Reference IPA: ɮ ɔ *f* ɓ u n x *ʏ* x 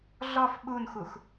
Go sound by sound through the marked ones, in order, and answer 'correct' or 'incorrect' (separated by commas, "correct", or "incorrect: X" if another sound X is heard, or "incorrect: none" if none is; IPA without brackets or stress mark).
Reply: correct, incorrect: u